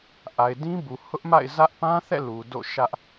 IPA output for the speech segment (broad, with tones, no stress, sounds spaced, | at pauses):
ʔ a˨ ɪ̯ d ĩ˦ b u˨ h ʊ˦ ʔ m a̰˦˨ ɪ̯ z ä˦ ʔ p ã˦ θ ɛ̰˦˨ l u˨ d o̰˦˨ ʃ ä˦ ʔ